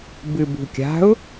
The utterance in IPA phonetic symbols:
bɨbṳkʲa̤ʊ̯

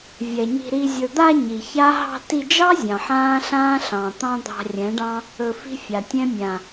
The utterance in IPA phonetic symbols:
vʲɛ˨ ɲi̤˧ɾi˧ zʲɵ˨d̪a˧ ɲi˨ça˦ ɦɑ̤˧ti˧d͡ʒɑ˦ zʲɑ̃˨ħãː˦ɬãː˦ ɬɑ̃˨ t̪ɑ̃˦d̪ɑ̤˧rʲɛ̃˨˦ɖɑ̃˦ | ɵ˧fi̤˦fʲa˨tʲɛ̃˦ mʲã˨

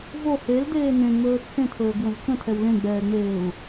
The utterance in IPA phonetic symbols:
vo heldeː nẽŋ͡mɵː t͡sʰẽtʰɵːɡwə̃v kə̃tʰɛw lẽɡ͡bɛːŋ͡meːu̯

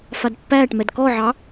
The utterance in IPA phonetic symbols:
fadpːæːʈmɛd kɔʕɑ

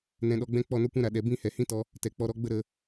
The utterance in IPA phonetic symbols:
nɛ̃˧ɗɔ˧ɡ͡bɛ̃˦ k͡pɔ˦˨no˦kʷɛ̃˦ ɾa˨ ɗɛ˨bĩ˦˨hɛ˨ hĩ˦tɔ˧ | tɛ˨k͡pɔ˧ɾɔ˧ɡ͡bə˦ ɾə˧

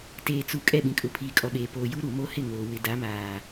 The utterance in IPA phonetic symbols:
teː˨t͡su˨ kʼɛ˦˨ɓĩ˨kʼʊ˨ pʰiː˨kʼɔ˨ ɓeː˨poː˨ ju˦ɾu˨ mo˦hɪ˦˨ŋoː˨ wɪ˨da˨˦maː˨

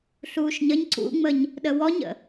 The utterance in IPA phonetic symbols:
ɬuːʃɲəɲ ǀṵŋ͡məɲ | ɗəwɔɲə̰

